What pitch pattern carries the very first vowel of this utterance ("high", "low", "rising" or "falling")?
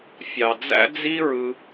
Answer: low